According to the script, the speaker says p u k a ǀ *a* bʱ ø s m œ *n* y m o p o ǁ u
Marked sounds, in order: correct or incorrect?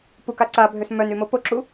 correct, correct

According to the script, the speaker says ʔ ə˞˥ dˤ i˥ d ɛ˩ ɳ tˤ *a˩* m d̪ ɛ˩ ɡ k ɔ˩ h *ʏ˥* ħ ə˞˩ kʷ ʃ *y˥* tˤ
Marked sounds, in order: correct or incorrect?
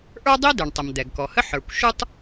incorrect, incorrect, incorrect

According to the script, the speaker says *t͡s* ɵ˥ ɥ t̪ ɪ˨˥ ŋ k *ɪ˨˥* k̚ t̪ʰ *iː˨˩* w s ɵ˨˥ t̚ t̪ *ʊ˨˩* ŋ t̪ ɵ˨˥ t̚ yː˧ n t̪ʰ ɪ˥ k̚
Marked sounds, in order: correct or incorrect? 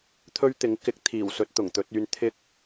incorrect, correct, correct, correct

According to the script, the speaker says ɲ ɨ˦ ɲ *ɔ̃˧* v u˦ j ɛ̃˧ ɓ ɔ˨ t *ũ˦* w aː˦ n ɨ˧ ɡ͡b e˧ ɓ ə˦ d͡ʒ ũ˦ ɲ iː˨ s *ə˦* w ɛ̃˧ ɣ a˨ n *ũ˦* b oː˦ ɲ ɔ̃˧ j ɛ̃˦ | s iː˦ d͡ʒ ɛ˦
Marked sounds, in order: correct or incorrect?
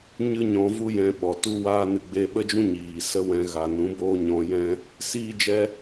correct, incorrect, correct, incorrect

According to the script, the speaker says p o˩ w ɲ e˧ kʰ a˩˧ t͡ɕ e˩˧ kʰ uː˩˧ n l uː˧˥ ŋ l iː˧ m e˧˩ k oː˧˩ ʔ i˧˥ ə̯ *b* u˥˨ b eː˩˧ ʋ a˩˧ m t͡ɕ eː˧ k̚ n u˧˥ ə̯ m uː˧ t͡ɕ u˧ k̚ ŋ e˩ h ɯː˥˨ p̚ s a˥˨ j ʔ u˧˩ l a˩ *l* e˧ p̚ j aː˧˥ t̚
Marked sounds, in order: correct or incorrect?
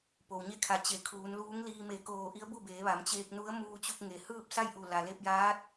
correct, correct

